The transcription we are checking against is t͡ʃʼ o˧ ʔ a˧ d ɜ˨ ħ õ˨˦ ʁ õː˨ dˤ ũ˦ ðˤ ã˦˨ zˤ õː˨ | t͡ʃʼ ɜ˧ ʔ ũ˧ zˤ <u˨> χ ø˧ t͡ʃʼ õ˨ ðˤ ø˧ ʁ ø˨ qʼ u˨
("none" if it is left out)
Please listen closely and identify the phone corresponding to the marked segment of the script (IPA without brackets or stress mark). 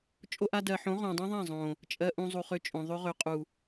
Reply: u˨